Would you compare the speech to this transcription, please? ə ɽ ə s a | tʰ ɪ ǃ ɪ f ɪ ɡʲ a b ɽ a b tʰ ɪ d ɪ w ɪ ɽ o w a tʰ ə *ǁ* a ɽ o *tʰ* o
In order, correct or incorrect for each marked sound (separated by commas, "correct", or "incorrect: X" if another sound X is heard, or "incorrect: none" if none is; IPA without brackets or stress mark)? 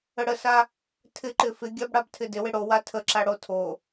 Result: correct, correct